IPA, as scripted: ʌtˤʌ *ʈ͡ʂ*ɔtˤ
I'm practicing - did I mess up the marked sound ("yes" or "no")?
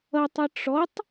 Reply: no